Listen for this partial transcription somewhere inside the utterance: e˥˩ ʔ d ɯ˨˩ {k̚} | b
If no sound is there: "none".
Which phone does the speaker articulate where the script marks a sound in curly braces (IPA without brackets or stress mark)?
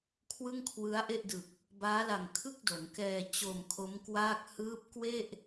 k̚